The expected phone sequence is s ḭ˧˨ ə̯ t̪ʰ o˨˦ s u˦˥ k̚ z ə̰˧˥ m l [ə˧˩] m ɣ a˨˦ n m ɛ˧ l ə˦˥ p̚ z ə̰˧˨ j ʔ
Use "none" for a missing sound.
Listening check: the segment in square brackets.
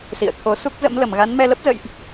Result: ə˧˩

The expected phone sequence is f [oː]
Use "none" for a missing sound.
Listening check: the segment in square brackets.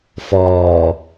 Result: ɔː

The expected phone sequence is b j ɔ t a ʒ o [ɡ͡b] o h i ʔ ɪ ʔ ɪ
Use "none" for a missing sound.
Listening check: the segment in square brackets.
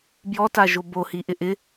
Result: b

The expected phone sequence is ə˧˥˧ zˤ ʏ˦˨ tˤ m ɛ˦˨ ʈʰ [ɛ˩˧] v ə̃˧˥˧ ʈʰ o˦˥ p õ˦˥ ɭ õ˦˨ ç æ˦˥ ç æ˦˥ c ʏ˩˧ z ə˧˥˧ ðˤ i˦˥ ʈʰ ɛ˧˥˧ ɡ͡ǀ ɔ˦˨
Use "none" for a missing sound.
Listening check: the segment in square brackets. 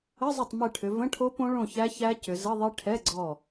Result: ʏ˩˧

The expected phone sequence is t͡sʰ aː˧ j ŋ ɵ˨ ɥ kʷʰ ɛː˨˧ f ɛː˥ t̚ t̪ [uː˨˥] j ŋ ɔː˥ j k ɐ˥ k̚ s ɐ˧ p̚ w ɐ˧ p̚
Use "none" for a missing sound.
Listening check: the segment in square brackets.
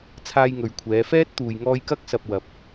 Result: uː˧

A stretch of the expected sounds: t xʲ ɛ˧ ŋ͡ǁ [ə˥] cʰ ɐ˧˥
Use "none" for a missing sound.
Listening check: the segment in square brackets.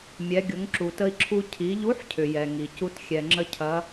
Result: ə˥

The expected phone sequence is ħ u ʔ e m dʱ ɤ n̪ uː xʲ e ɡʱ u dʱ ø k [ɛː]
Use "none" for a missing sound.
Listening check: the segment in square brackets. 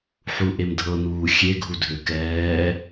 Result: ɛː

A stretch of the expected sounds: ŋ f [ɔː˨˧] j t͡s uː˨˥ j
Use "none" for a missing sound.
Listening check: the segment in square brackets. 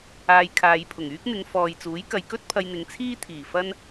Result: ɔː˨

